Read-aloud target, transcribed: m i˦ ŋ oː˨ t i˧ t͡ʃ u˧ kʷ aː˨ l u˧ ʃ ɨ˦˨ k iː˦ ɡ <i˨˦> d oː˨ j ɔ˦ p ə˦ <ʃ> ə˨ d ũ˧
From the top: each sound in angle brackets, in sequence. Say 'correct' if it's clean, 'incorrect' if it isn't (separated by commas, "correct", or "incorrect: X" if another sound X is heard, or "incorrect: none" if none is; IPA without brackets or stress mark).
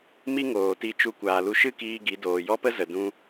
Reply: correct, incorrect: z